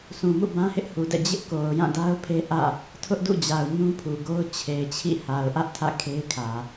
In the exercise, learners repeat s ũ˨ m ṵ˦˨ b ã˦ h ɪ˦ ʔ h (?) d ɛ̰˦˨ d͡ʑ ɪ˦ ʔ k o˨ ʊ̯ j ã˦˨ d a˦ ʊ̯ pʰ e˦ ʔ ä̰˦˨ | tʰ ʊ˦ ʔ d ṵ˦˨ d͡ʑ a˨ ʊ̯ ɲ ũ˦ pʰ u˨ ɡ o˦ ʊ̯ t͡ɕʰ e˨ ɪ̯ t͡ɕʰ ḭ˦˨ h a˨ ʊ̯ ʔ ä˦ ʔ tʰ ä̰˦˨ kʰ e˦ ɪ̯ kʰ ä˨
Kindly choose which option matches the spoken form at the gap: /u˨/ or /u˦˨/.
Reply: u˨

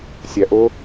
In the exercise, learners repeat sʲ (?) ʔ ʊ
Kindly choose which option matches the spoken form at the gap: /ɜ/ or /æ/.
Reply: æ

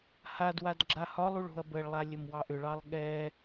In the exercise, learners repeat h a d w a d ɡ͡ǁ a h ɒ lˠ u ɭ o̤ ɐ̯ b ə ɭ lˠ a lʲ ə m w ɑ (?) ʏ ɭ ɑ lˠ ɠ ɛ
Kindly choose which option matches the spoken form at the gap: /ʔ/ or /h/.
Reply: ʔ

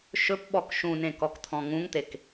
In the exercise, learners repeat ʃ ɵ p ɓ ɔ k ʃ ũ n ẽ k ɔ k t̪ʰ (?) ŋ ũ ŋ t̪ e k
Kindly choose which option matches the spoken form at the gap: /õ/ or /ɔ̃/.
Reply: ɔ̃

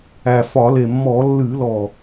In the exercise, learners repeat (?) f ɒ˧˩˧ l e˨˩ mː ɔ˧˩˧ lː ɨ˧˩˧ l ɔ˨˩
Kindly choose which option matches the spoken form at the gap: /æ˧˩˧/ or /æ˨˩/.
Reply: æ˨˩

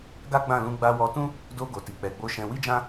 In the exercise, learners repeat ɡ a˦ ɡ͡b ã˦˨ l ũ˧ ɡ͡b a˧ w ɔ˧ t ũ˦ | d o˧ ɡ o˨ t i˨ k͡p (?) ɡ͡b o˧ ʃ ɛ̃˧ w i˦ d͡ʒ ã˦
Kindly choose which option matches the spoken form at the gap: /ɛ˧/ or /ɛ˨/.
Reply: ɛ˨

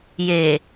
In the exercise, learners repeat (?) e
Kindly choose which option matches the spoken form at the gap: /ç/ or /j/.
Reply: j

